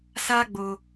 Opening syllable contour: high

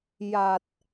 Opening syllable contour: low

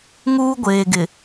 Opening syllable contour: high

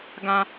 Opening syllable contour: low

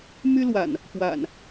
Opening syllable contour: high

